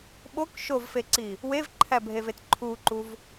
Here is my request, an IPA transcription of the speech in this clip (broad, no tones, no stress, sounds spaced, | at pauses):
ɓ o k ʃ o v f e ǀ i | w e v ǃʰ æ bʱ e v e t ǃʰ u ǃ u v